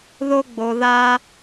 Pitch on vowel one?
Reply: high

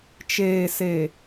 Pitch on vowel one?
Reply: low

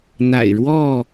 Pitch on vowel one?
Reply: low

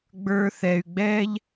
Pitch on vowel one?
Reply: high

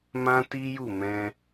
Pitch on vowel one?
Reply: high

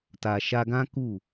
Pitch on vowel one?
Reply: low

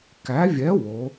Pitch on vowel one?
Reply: rising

